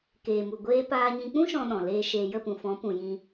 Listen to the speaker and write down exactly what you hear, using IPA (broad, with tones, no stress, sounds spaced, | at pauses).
k eː˨ m u˨ ɡʷ eː˧ p aː˧ ɲ ĩ˧ k͡p ũ˦ ʃ ɔ̃˦ ɗ ɔ̃˨ l eː˧ ʃ eː˨ j ə˦˨ p ũ˨ f ɔ̃˨˦ p ũ˨ j ĩ˧